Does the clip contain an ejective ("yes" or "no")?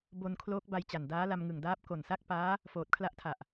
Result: no